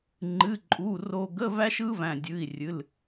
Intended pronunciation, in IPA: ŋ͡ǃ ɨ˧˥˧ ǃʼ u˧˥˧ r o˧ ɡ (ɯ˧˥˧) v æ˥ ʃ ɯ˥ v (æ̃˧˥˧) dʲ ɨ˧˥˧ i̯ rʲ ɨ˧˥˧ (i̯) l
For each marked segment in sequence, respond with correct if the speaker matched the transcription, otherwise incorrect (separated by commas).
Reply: incorrect, incorrect, incorrect